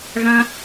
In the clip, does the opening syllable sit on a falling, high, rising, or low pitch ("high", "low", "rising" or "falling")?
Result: high